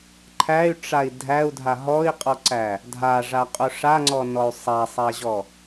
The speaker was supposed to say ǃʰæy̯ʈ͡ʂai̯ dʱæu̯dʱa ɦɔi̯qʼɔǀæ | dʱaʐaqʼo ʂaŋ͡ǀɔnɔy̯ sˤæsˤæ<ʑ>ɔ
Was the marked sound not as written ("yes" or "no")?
no